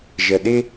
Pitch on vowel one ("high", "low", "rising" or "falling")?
low